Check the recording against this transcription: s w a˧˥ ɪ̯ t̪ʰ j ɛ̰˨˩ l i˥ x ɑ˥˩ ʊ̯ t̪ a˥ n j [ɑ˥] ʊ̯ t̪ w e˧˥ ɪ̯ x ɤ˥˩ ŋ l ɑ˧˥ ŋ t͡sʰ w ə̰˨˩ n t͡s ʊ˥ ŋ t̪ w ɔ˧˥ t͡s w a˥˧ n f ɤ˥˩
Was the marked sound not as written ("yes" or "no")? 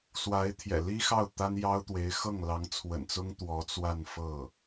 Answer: no